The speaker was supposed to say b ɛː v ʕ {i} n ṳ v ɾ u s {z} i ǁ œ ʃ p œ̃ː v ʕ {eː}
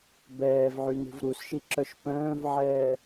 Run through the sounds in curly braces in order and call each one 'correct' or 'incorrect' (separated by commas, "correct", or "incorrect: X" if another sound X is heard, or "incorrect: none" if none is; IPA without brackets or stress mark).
incorrect: y, incorrect: ʃ, incorrect: ɛː